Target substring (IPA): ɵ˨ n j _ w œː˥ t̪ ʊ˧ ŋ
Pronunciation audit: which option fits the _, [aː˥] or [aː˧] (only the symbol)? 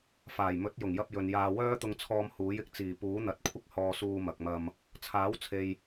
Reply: aː˧